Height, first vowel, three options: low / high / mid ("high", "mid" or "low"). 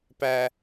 low